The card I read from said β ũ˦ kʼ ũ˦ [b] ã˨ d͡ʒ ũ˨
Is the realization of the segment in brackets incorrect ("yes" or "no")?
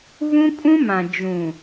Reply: yes